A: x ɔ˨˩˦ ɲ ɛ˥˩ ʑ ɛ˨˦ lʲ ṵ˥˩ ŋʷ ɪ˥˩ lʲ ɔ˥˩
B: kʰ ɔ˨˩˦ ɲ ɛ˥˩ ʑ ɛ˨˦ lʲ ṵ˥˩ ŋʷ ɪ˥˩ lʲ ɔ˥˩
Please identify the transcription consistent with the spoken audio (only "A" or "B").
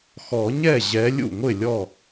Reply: A